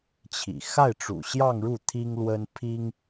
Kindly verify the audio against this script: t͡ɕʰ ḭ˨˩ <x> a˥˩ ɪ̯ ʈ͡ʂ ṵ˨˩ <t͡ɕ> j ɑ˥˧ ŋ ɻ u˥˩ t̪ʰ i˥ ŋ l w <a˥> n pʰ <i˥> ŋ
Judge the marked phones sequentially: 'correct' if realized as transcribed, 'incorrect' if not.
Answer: correct, incorrect, incorrect, correct

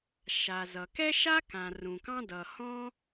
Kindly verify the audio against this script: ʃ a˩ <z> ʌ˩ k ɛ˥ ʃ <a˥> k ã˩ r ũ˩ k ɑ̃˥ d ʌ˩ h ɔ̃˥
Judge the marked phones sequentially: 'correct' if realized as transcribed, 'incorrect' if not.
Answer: correct, correct

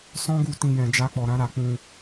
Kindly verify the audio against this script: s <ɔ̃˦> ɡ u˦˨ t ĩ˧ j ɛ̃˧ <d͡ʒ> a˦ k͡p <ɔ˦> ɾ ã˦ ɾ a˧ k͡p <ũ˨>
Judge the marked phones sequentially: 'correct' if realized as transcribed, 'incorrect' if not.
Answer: correct, correct, incorrect, incorrect

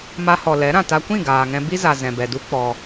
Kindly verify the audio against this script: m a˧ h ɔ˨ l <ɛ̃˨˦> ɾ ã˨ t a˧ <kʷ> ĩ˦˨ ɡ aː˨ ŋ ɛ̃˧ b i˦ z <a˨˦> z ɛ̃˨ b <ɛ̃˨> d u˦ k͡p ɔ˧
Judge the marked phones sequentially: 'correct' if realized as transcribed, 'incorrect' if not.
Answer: incorrect, correct, incorrect, incorrect

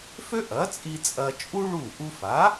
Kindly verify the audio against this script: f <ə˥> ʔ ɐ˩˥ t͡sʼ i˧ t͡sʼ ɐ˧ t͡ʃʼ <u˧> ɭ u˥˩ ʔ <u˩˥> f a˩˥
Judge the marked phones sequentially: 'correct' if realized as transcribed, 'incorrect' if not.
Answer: incorrect, incorrect, incorrect

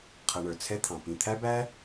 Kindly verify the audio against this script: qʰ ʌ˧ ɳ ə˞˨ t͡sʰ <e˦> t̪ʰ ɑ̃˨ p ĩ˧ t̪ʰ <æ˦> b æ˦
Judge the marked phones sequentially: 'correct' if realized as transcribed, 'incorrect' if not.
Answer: incorrect, correct

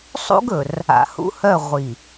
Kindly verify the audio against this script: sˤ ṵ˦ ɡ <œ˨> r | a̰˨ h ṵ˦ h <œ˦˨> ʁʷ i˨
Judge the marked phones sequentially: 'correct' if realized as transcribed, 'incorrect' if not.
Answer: incorrect, correct

